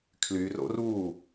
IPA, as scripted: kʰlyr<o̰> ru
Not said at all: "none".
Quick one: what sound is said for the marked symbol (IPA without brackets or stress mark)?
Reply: o̰